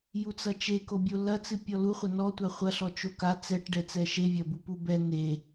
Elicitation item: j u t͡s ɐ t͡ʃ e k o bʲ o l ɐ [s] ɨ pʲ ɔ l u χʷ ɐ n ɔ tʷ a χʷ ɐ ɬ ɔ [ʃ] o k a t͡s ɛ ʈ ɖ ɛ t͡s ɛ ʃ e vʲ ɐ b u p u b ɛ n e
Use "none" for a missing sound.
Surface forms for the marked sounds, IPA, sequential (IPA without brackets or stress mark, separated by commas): t͡s, t͡ʃ